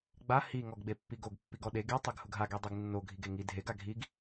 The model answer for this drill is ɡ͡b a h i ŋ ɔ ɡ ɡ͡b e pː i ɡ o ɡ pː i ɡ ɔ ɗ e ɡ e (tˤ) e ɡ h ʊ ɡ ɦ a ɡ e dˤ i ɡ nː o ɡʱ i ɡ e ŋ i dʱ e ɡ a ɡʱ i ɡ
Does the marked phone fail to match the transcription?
no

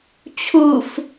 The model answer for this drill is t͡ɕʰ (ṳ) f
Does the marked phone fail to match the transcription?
yes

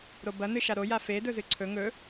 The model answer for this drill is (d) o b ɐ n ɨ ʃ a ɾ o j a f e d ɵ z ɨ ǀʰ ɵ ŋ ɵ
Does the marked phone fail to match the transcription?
yes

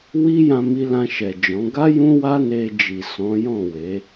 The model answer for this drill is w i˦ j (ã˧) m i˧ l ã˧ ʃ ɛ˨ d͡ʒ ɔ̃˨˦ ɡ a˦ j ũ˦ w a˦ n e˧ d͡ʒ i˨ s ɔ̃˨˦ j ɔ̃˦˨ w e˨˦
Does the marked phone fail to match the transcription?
no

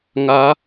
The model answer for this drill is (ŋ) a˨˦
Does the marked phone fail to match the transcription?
no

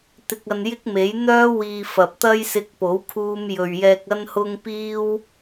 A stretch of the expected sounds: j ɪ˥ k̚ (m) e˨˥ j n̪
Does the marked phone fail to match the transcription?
no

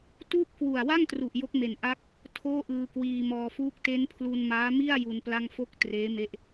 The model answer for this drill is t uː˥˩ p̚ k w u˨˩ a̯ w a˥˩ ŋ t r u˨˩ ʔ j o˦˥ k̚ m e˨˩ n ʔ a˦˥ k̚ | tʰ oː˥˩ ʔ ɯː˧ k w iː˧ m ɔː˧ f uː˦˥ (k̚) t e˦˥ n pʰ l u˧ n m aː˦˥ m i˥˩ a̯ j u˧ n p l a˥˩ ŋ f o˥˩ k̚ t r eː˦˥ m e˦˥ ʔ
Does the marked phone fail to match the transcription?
no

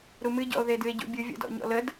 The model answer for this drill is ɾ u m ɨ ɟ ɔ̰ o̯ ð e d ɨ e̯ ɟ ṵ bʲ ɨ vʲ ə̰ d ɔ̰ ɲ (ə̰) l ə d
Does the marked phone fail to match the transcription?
yes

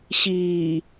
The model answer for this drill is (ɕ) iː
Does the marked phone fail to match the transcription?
no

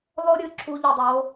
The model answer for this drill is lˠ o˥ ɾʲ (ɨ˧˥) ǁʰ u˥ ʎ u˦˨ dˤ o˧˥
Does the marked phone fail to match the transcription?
no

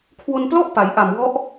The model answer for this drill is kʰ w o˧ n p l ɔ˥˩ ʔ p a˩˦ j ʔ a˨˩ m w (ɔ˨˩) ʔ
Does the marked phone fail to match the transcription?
yes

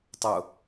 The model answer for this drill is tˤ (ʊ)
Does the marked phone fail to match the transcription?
no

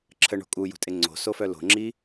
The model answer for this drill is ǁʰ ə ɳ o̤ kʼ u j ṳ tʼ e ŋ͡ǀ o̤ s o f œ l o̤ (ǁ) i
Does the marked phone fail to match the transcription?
yes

